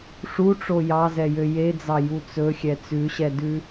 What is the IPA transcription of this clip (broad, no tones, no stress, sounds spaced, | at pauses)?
ʂ u ʈ͡ʂ o j ɑ z ɛ j ø j e d͡z ɑ j u t͡s ɵ xʲ ɛ t͡s ʉ ɕ ɛ d ʉ